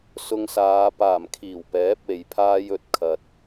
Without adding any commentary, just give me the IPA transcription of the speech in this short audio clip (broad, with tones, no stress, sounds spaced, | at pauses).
s ʊ˧ ŋ s aː˨˧ p aː˨˩ m kʰ iː˨˩ w p ɛː˨˥ p̚ e˨ j pʰ aː˥ j ɵ˨ t̚ kʰ ɐ˧ t̚